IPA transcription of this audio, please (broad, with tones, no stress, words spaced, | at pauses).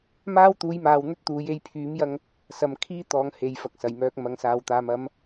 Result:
maː˥wt̪uː˨˥jmaː˨w n̪ɵ˥t̚t̪uː˨˥j e˧jpʰyː˨˥m jɐ˥ŋ | sɐ˨m kʰiː˥t̪ɔː˨ŋ he˨jfɐ˨k̚sɐ˨˩jmœː˧k̚ mɐ˨ŋsaː˨wt̪aː˨m ɐ˨˧m